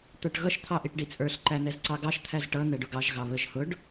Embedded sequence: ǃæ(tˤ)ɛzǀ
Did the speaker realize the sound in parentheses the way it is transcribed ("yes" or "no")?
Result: no